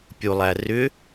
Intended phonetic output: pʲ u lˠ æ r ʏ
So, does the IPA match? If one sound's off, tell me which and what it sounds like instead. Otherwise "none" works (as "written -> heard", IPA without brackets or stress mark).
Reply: none